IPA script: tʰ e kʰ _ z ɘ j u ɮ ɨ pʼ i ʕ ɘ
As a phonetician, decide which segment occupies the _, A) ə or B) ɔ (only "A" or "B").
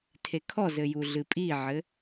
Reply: B